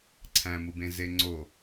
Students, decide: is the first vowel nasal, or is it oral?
nasal